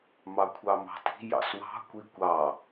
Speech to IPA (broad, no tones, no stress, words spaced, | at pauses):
mɑkʷʰɑmɑ̤ti̤ jɑ̰swɑ̤ kʷikʷɑ